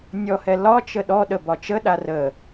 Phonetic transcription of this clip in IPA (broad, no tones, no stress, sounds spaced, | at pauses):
nʲ ɔ h ɛ l ɒ t͡ʃ ə ɗ ɔ ɗ ə b ɒ t͡ʃ ə ɗ a r ə